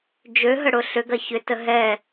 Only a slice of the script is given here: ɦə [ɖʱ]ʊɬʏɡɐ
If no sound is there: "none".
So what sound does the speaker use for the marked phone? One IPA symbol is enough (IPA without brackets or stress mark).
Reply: ɽ